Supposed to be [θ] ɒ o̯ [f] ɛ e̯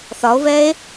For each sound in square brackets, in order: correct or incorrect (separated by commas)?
correct, incorrect